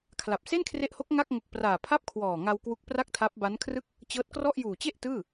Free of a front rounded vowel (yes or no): yes